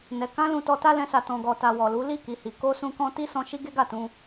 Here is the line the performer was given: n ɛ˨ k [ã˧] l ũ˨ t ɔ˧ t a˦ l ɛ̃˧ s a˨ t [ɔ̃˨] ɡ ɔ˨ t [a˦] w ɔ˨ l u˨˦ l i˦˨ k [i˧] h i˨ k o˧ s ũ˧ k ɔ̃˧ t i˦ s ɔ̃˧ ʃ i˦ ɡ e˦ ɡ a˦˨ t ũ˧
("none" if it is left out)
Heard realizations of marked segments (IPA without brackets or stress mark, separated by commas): ã˧, ɔ̃˨, a˨, i˨